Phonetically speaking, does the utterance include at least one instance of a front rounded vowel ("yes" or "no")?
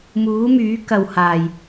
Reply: yes